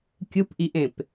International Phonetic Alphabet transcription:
kʲ ɯ p ʔ i ʔ ẽ p

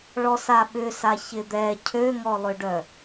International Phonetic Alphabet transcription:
ɭ ɔ s a ɓ ʏ s a ç ɪ d̪ ɛ cʰ ø ŋ ɔ lˠ ʏ ɖ œ

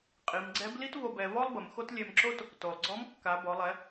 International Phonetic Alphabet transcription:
qʼ i˩˧ m ɡ͡ǀ ɛ˧˥ b l i˥ t v o˧ b ɛ˩˧ v ɔ˥ lˠ b ə˩˧ m x o˥ t lʲ ɛ˧ m ǁ o˥ t | t o˩ lˠ ɡ͡ǀ ɔ˧˥ m kː a˩˧ b ɔ˩˧ lˠ ɛ˩˧

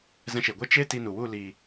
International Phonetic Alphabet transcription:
z ɛ̃˧ ʃ e˨ ɡʷ e˦ t͡ʃ e˦ t i˧ n u˨ w u˦˨ l iː˨

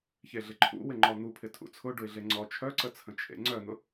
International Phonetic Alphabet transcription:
ç e ɮ ɪ ǃʰ ṵ w ɪ ŋ͡ǃ ɔ n̪ u pʰ ɪ tʰ ṵ t͡sʰ ʊ ɖ ʊ ɪ̯ ɮ e ŋ͡ǀ ɔ t͡ʃʰ œ ǀ ə t͡sʰ ə̃ t͡ʃʰ ḛ ŋ͡ǀ œ n̪ ʊ

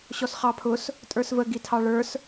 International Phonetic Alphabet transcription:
ɕ ɔ s χ ɑ pʰ ʊ s | tʼ ə˞ s v ə ɡ i tʰ ɑ ɭ ə˞ s

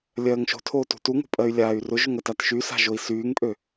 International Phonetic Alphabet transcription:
lʲ ɜː ŋ ʃ o̤ tʰ oː t ṳ t u ŋ o̤ pʼ ɜ y̯ lʲ aː y̯ r ʊ ʒ ʊ ŋ ɜ t a t ʃ y s a̤ ʒ o i̯ s yː ŋ pʼ ø

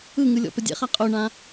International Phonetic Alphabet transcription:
ɯ ŋ ɯ lʲ ɔ̰ p ə dʲ ɛ̰ χ a qʼ o ɳ ã

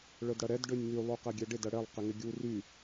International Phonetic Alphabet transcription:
ɭ œ d ɽ ɐ ɾ ɛ d ɖ ø nʲ ŋ y lˠ u q ɛ ɡʲ ɛ ɖ ɪ d ɐ ɽ ɛ lˠ q ɪ ŋ ɪ ɡʲ u r y

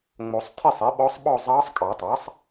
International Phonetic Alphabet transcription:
ŋ͡m o˨˩˦ sˤ tʰ i˥˨ sˤ ɛ˩˥ ɓ ɔ˧˥ sˤ ɓ ɔ˥˨ zˤ ɑː˧˥ sˤ kʼ ɑ˨˩˦ tˤ a˩˥ sˤ

